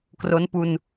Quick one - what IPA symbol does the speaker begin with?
k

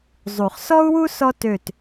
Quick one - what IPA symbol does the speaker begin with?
zˤ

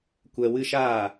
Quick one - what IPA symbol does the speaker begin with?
kʷ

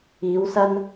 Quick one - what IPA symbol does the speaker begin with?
iː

